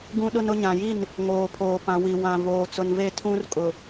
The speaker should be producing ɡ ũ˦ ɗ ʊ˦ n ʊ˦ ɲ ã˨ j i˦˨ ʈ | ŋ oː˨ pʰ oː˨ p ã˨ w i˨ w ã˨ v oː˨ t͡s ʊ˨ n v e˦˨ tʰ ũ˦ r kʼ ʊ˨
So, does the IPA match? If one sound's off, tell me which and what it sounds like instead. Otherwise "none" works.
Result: ʈ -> n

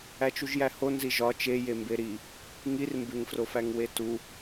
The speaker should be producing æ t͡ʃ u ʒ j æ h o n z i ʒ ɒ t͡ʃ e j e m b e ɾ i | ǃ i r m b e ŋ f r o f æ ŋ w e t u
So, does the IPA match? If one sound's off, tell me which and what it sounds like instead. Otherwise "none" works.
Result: ǃ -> ŋ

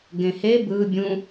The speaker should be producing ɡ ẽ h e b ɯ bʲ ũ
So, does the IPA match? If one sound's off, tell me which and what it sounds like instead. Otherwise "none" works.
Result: none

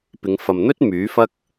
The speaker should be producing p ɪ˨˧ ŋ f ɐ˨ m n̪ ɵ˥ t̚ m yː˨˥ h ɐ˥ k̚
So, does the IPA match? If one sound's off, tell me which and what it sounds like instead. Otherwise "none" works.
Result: h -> f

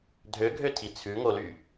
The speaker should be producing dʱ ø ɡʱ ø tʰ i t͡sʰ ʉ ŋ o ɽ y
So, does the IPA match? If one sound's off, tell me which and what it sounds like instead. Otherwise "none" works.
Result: ɽ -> l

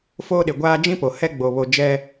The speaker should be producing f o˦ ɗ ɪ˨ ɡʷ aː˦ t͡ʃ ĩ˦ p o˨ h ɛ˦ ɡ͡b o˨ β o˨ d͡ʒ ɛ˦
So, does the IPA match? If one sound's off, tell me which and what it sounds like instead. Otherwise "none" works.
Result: t͡ʃ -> d͡ʒ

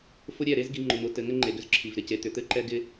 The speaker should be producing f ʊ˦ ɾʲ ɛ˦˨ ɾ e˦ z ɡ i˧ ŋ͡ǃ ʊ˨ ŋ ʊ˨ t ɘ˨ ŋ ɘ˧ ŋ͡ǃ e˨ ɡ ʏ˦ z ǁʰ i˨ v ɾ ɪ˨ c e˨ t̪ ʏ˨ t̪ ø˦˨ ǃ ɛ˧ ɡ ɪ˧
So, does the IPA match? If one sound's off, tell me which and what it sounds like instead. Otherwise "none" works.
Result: ø˦˨ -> ɘ˦˨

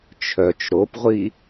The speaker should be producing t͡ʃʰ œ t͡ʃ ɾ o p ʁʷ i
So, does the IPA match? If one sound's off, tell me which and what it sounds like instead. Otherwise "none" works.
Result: none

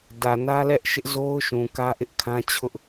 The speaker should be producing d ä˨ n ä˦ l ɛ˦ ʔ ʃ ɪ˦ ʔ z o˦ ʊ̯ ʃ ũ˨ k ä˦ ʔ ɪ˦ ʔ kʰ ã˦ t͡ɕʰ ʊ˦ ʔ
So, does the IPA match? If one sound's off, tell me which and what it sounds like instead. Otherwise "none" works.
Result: none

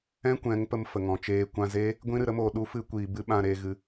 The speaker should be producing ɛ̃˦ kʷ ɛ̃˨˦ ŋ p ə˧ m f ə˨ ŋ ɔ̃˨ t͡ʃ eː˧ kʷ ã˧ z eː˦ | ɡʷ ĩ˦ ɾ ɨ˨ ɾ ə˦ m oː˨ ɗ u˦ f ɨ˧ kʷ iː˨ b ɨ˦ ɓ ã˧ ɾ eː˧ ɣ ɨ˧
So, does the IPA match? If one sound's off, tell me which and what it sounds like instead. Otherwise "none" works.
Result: none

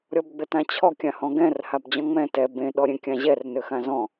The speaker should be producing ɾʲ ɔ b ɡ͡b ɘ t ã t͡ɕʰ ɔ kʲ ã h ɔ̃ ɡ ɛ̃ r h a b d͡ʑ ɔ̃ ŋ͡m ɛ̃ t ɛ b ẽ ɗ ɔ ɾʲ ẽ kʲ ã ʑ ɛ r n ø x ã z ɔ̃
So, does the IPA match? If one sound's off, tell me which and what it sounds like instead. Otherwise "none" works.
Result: none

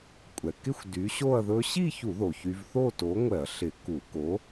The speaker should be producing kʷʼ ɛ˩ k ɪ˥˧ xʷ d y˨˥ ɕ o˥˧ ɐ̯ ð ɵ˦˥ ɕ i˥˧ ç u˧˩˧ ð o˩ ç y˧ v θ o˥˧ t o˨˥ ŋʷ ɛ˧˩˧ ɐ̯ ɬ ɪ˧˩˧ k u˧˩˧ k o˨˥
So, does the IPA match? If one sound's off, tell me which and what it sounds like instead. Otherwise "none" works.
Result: none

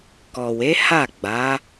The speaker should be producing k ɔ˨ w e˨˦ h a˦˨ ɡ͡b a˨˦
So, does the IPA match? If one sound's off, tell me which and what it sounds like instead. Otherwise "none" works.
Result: none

